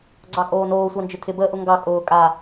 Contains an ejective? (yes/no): yes